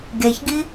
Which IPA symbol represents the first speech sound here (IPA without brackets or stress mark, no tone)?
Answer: ɡ